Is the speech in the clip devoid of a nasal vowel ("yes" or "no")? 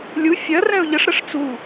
no